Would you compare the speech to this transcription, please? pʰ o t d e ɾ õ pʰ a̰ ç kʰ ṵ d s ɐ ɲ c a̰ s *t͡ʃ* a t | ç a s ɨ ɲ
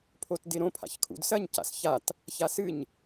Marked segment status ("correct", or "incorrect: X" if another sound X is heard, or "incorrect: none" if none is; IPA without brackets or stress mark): incorrect: ç